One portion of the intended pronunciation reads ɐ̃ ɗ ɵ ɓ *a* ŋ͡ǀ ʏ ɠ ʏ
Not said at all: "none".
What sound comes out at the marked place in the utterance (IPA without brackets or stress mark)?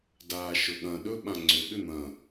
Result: ã